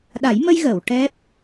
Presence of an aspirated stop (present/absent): absent